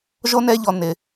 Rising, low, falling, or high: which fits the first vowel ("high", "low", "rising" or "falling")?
high